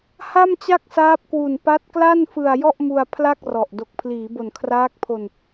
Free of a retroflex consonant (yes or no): yes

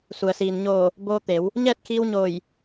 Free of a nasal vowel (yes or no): yes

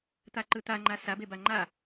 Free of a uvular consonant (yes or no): yes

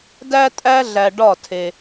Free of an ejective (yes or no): no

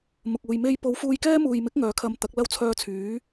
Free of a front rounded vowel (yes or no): no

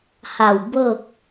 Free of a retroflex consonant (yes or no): yes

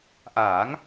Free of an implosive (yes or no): yes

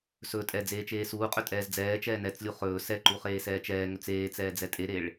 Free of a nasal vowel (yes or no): yes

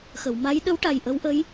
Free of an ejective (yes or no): yes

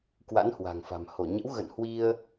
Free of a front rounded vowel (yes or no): yes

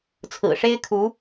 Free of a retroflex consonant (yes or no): no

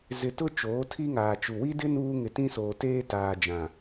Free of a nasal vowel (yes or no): no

